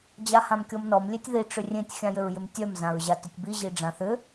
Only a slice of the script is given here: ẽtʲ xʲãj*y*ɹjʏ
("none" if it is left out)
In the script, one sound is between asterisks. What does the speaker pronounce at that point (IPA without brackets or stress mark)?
ʏ